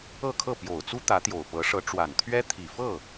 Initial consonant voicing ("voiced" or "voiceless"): voiceless